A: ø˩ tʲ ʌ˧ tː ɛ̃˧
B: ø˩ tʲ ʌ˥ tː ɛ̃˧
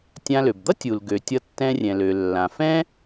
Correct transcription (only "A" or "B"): A